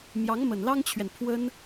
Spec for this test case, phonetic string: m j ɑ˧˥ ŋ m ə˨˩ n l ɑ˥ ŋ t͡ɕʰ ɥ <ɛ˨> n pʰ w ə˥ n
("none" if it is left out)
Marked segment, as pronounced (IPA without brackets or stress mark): ɛ˨